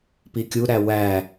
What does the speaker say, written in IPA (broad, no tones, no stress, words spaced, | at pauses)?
pikʲu ɾæwæ